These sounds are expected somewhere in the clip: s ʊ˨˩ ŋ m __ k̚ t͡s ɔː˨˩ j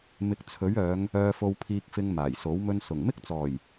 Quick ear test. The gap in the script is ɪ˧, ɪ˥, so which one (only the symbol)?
ɪ˥